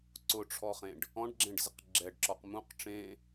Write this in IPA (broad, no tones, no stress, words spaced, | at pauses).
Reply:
ǀʊʈ͡ʂʰɔχẽɖ | ɔ̃ɖɡ͡ǁẽɖzɪq ɡ͡ǁɛɖǁɔq mũq ʈ͡ʂẽ